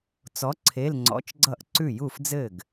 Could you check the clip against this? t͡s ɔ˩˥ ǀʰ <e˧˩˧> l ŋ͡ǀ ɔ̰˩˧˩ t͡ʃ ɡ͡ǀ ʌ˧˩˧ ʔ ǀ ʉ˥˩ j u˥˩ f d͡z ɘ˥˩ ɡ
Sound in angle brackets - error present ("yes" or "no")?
yes